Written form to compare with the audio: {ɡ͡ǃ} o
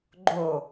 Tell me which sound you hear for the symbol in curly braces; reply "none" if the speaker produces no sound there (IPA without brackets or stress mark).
ɡ͡ǃ